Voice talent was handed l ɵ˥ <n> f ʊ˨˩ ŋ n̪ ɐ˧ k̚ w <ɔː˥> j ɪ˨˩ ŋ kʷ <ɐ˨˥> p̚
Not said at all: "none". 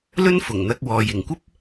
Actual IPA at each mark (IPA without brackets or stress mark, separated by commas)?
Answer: n, ɔː˨, ɐ˥